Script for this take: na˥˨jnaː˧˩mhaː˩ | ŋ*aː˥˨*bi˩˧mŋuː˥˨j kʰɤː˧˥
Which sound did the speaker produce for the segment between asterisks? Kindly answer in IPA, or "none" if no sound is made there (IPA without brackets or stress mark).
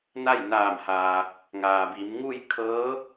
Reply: aː˩